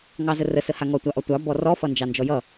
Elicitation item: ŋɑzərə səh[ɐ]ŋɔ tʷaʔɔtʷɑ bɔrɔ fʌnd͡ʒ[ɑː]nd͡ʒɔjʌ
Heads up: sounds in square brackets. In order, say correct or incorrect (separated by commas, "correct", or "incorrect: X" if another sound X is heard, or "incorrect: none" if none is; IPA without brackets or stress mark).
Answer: incorrect: a, incorrect: ɑ